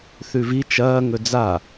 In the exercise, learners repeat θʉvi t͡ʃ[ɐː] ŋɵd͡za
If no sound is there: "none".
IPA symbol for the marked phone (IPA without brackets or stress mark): ɐː